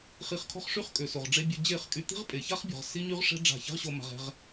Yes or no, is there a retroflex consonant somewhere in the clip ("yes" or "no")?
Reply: yes